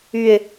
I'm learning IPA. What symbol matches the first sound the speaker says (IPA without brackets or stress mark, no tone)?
y